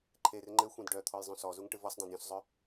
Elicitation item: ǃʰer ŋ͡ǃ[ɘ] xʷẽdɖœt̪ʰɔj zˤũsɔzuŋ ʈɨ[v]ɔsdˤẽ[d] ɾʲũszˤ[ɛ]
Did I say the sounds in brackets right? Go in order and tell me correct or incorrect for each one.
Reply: correct, correct, correct, incorrect

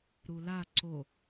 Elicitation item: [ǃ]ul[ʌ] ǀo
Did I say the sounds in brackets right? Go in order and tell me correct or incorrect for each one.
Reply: incorrect, incorrect

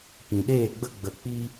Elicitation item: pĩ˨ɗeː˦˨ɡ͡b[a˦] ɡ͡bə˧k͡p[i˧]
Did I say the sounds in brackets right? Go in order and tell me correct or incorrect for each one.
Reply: incorrect, incorrect

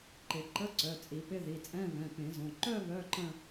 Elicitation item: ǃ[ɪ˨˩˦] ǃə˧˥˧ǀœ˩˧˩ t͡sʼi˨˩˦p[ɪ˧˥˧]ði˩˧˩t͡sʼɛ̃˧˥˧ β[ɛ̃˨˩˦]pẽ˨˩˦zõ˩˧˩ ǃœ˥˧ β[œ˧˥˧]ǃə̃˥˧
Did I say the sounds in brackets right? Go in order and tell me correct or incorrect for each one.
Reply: correct, correct, incorrect, correct

